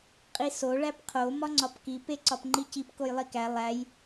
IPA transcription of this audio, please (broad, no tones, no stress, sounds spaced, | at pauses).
qʼ i s o ɭ æ p qʰ o m ɒ ŋ͡ǀ ɒ p k i p e ǀ ɒ p ŋ͡ǃ i c i p k o j lˠ i k æ lˠ æ j